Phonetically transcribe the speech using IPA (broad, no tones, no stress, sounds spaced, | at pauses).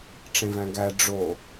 ʈ͡ʂ ẽ v æ̃ ɡ æ ɖ͡ʐ o